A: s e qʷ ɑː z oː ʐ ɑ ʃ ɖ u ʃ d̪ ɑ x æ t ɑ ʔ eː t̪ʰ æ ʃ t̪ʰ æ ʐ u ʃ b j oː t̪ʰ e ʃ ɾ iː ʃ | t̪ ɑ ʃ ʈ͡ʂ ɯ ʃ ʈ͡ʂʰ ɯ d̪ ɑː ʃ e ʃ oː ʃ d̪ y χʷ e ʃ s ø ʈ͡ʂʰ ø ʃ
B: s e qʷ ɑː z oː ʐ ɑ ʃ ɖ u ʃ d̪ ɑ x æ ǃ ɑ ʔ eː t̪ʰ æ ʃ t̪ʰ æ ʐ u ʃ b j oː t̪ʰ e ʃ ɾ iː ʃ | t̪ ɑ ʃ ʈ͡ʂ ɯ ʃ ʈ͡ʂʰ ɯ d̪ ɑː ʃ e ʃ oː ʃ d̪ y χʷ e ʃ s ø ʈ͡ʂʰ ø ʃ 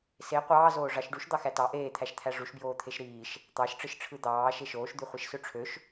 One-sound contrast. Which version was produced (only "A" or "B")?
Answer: A